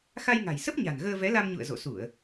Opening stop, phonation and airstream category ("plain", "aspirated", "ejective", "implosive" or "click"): plain